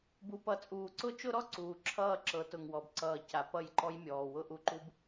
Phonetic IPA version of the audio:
b u˨ p ʌ˨ t͡sʼ uː˨ ǀ ʊ˦ t͡ʃ ʊ˦ ɾ ɔ˦ ǀ uː˨ ǁʰ ʌː˦˨ ǁ ɤ˨˦ t ʊ˨ ŋ w ɔ˨ b ǀ ʌː˨ c a˨ p ʌ˦˨ j ǃ ɔ˦ j mʲ ɔː˨ w ʊ˦ ʔ u˨ ǃ u˦ b

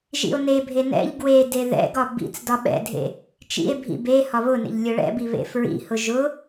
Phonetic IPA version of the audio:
ʒ ḭ o̯ n e bʱ e n ɛ̰ ʎ ɡ w e d e ð ɛ̰ ɡ ɒ b ḭ t͡s d ɒ ɓ ɛ̰ dʱ ḛ | t͡ʃ ḭ e̯ bʱ ḭ b e h ɒ β ʊ n ḛ ʎ lʲ ʊ ɭ ɛ̰ b i β ḛ f ɹ ḭ h ʊ ʒ ʊ

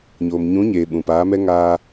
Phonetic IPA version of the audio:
ɲ oː˨ m ɲ ũ˨˦ ɲ eː˨ ɓ ũ˨ p aː˨˦ m ɛ˦ ŋ aː˦

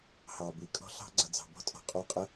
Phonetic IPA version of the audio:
h ɑ˩ b i˩ kʼ ɔ̤˥ ɬ ɑ̤˥ ɡ͡ǀ ʌ˩ d͡z ɑ̤˩ b ɔ̤˥ tʼ ɔ̤˩ qʼ ɔ˥ qʼ ə˥

